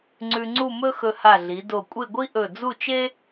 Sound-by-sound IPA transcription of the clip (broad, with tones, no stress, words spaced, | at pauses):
ŋ͡ǀʉ˧ŋ͡ǀu˥˧mɵ˥xɵ˧ ha˧˩ɮi˩˧do˧˩kʷʼe˥˧ ɡʷi˥ ʔɵ˧˩d͡zu˥˧t͡ʃe˥